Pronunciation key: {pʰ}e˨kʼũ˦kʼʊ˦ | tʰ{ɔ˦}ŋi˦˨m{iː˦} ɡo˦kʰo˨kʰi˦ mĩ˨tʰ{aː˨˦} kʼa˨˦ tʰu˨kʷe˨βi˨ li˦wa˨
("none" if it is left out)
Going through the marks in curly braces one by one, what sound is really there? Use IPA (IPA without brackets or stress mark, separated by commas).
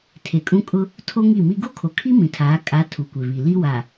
tʰ, o˦, i˦, aː˨˦